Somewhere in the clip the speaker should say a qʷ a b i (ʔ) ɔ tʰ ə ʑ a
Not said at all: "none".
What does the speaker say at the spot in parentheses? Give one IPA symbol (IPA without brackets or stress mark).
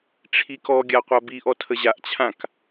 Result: ʔ